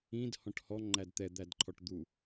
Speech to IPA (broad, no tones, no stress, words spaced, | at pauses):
ĩd hɔ̃ʈhɔ ŋ͡ǃædt̪ɛ d̪ædǃʰɔʈd̪u